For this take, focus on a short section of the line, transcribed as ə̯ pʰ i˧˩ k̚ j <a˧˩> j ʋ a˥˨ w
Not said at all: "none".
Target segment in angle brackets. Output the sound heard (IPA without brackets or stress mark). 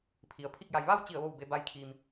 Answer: a˩